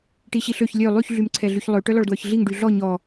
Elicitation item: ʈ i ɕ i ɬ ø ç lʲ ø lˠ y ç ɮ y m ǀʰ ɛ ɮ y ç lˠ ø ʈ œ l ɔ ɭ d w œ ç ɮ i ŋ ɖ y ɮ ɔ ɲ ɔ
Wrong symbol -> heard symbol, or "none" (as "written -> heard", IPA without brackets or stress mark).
none